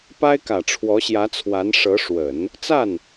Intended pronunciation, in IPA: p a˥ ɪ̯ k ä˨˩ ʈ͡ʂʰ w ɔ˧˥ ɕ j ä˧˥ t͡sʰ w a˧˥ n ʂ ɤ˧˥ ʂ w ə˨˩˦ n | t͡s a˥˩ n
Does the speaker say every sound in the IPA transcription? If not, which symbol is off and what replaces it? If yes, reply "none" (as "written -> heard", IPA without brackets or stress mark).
none